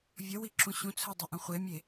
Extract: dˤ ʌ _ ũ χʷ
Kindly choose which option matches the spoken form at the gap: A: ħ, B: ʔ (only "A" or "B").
B